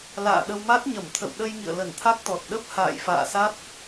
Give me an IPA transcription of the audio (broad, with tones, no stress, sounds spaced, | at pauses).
l a̰ː˧˨ ɗ ə˧ w m a˦˥ t̚ ɲ ə˧˩ m t̪ʰ ə̰˧˨ w ɗ ə˧ j ŋ ḭ˧˨ ə̯ l ə˧˩ n t̪ʰ a˦˥ k̚ t̪ ɔ˨˩ t̚ ɗ ə˦˥ p̚ h a̰ː˧˨ j f a̰ː˧˨ s a˦˥ t̚